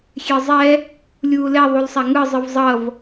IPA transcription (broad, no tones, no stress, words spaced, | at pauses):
xʲezˤɛ | lʲuːlɛ ðˤulsˤaŋɯ zˤɯvzˤʌv